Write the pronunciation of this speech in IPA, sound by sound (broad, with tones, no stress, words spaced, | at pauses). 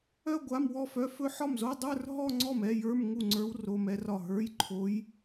œ˥˧ ɡʷa˧˥˧mwɔ˥˧fœ˧˥˧ fɵ˥˧ ħɒ˥˩mzo˧˥˧ dˤə˞˥˧r ɦɔ˥˧ŋ͡ǀɔ˥˩m ɛ˧˥˧jə˞˧˥˧m ŋu˥˩ŋ͡ǀə˞˧˥w ro˧˥˧mɛ˧˥rɒ˥˩ ɦə˞˧˥˧jǃʰo˧˥j